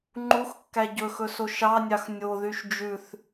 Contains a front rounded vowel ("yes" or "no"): yes